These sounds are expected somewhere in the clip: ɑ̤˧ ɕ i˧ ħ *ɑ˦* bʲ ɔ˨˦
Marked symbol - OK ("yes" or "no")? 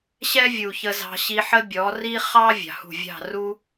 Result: no